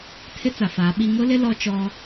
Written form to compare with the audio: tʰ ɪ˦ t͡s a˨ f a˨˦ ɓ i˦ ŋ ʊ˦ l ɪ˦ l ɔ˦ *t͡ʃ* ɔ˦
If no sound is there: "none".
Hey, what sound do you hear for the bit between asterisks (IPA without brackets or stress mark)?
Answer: t͡ʃ